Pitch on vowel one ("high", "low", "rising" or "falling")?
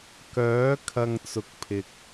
rising